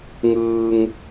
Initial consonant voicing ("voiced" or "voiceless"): voiced